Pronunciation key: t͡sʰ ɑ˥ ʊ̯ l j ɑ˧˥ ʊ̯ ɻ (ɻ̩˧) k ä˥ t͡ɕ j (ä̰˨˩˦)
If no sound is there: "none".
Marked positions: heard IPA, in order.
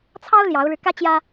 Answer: ɻ̩˧, ä˥

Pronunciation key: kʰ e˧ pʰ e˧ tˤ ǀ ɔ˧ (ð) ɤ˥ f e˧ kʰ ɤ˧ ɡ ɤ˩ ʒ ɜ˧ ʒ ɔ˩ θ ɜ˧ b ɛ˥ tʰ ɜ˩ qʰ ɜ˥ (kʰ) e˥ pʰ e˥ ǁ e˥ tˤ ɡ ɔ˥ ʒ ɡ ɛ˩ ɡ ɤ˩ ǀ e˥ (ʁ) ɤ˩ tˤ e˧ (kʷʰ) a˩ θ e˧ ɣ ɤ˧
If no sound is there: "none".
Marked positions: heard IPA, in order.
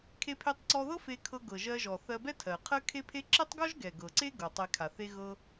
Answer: ð, kʰ, ɡ, kʰ

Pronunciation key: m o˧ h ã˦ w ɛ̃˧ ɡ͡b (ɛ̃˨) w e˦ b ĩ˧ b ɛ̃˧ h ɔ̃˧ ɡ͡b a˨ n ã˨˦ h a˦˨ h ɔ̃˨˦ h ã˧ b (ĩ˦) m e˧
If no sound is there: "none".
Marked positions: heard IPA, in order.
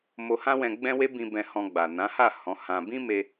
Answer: ɛ̃˦, ĩ˦

